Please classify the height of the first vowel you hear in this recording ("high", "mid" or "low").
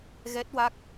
mid